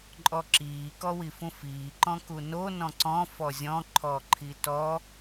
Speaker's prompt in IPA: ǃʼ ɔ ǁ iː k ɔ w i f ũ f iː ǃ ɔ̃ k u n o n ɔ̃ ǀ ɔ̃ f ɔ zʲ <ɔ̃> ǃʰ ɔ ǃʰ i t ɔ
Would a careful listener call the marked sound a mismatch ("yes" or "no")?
no